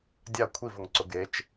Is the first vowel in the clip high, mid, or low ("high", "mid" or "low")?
low